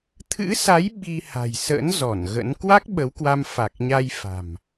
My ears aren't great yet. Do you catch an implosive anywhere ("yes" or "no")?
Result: yes